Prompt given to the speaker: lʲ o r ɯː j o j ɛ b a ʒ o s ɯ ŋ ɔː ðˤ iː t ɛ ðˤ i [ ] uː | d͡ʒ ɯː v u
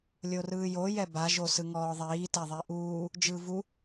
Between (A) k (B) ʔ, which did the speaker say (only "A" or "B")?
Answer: B